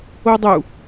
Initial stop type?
plain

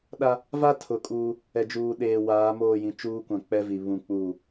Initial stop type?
implosive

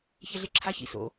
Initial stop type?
click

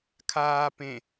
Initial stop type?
aspirated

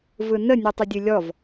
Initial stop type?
plain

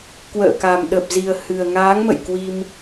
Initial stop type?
plain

